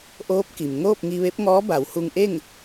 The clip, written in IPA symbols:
ʔoː˧˥p̚ki˩m ŋoː˥˨p̚ŋi˧ʋe˧˥p̚ŋɔː˧˥ ba˩˧whu˧ŋʔe˥˨ŋ

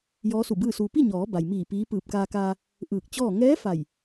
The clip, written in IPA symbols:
jɔː˧˥su˧˩bɯː˥˨suː˧ pi˥˨ɲɔː˩˧ ba˩jmiː˧˩ piː˧˥ pɯː˧˩p̚kaː˧kaː˧ | ʔɯː˧˩k̚t͡ɕɔː˥˨ ŋɛː˧˥ fa˧˩j

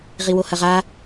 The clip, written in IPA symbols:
ʁiwohɐʁa

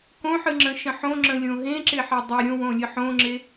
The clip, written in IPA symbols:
kõħɨŋ͡ǁə̃ʃə̃ ħõŋ͡ǁə̃lʲõ ɦẽǁeħe dˤe ɾʲõwõlʲɨ ħõŋ͡ǁe

